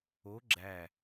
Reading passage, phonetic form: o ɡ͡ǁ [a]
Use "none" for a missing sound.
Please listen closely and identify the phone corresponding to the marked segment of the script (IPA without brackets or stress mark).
æ